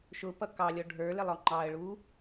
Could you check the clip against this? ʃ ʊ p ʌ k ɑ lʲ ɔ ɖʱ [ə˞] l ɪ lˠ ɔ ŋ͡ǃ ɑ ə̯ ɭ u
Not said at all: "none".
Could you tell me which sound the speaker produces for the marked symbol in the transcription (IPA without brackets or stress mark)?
ə˞